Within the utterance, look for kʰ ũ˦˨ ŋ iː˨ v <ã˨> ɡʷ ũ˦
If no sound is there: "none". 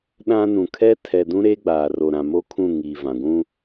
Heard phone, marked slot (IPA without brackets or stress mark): ã˨